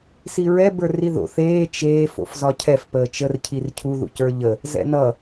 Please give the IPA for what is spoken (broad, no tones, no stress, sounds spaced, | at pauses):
s i ɹ ɛ b ə˞ r i ð o̰ θ eː t͡ʃ eː f o̰ f z ɒ cʰ ɛ f p əː t͡ʃ ə r cʰ i r cʰ u ð ṵ c ə˞ ʎ ə | z ɛ̰ n ʌ